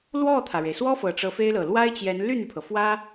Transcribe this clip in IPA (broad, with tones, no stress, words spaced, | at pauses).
lwɔ˥˩t̪ʰä˩ɻe˩ɪ̯swɔ˥ fɤ˨˩ʈ͡ʂɤ˧˥fe˥ɪ̯lɤ˨˩ lwa˥ɪ̯t͡ɕjɛ˧˥n ly˥˩n̪y˩pʰɤ˩ fwä˥